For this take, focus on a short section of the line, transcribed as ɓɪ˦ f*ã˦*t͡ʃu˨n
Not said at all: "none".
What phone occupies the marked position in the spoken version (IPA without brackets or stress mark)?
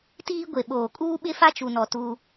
a˦